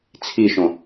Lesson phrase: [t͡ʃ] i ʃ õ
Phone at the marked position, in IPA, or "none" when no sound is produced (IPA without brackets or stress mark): t͡sʰ